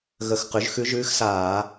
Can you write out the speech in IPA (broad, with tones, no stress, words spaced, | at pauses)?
ɣə˧˩˧x qʉ˩˥ʒxʉ˧˥ʒʉː˧˥xsaː˧˩˧